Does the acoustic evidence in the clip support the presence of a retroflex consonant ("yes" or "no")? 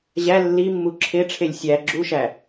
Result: yes